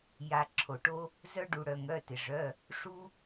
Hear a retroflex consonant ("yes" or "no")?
yes